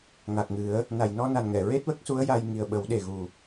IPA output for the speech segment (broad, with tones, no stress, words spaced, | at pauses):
ŋa˨˩k̚ŋɨ˨˩˦ə̯ | na˨˩˨jnɔ˧na˨˩n ŋɛ˨˩˨ ɹe˦˥t̚wə˦˥k̚su˧˥ə̯ ja˧j ŋi˨˩ə̯ɓə˨˩˦wɗe˨˩ ɣu˨˩